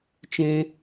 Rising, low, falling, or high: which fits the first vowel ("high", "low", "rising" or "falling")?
high